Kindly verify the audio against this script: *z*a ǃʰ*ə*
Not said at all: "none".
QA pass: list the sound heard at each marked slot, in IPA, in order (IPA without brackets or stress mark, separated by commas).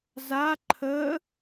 z, ə